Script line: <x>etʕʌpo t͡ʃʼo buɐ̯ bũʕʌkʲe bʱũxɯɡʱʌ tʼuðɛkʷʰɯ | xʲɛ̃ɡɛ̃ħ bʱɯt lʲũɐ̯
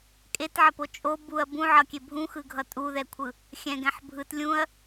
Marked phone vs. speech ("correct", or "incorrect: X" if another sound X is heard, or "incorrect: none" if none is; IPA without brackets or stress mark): incorrect: kʼ